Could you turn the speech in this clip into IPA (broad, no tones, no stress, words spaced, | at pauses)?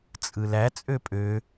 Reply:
t͡sʼɯlæ t͡sʼøpʼø